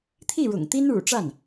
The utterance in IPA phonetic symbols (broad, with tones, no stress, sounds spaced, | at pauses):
t̪ʰ i˥˩ ɻ ʊ̰˨˩ ŋ t̪ i˥ n ɻ ṵ˨˩ ʈ͡ʂ a˥˩ n